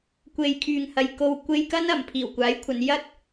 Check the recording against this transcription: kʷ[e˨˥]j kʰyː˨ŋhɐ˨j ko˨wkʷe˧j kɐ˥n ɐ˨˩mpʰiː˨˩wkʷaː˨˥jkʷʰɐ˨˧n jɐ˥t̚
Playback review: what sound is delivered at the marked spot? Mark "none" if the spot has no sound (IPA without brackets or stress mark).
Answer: e˨